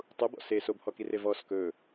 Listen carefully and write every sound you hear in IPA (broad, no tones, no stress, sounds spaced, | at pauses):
tˤ u b ɔ̰ s e s o b h ɔ k i r e v ɔ s k ɵ